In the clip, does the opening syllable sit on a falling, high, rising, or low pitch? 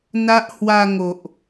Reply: high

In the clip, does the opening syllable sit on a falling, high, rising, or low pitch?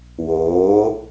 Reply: rising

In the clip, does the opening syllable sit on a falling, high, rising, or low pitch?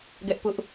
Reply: high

